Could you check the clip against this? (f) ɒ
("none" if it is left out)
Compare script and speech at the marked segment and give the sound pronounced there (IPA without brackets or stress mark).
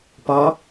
p